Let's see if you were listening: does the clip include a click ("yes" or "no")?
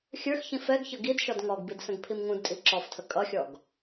yes